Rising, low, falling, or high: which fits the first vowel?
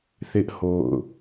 high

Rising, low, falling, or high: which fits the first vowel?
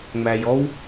low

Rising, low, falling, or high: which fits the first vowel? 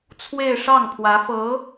falling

